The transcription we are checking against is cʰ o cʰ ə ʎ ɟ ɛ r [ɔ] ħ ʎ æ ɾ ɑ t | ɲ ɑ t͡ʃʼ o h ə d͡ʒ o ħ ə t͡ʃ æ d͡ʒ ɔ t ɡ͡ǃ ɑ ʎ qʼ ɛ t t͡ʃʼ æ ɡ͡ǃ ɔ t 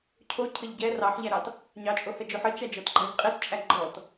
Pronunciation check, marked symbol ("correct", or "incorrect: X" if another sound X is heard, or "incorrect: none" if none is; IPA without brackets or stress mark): incorrect: ɑ